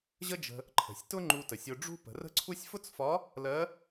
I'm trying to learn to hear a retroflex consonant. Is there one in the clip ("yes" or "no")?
yes